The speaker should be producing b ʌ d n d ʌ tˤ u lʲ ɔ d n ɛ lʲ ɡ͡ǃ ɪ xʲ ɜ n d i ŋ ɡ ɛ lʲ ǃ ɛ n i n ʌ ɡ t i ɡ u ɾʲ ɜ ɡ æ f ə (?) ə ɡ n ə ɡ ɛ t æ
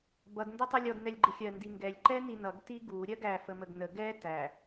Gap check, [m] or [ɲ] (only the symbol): m